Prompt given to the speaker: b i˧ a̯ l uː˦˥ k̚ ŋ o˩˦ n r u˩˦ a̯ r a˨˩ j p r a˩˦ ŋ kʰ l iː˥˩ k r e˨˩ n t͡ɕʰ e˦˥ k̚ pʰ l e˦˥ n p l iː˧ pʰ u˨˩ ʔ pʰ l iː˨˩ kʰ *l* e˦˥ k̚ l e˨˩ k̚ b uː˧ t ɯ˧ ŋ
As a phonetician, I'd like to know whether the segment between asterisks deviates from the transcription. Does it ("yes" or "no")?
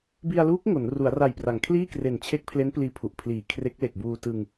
yes